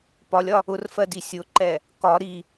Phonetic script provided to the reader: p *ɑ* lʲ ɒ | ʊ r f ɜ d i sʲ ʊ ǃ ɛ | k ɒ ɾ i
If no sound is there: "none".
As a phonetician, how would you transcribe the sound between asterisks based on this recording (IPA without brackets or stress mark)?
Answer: ɒ